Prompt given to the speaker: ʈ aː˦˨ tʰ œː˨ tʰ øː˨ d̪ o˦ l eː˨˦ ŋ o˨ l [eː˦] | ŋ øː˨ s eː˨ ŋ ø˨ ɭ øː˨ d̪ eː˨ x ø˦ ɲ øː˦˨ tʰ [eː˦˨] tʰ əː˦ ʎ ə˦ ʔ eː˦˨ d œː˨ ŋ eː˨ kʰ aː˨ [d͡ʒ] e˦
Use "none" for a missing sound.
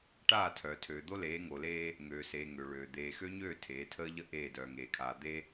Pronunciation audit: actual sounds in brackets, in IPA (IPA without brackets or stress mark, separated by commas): eː˦, eː˨˦, d̪